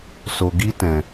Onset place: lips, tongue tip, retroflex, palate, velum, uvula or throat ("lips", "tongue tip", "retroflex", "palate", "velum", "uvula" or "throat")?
tongue tip